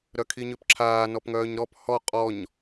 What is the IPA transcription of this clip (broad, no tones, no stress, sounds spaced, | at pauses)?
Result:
ɾ œ kʰ i ɲ ø p ǁʰ aː n ɔ p ŋ œː ɲ ɾ ɔ p h ɔ qʼ ɔ ɲ